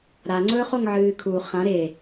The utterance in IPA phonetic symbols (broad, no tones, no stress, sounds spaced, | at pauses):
ɾ a ŋ͡ǀ ɵː χ o ŋ ʕ ɨː kʰ u χ ã ɾ e